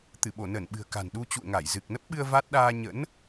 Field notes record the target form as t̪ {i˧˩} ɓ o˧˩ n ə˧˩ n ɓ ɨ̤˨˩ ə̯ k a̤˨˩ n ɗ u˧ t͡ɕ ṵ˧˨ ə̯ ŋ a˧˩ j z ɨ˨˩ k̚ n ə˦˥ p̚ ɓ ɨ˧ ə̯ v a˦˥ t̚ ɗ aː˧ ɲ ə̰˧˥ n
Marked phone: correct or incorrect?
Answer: incorrect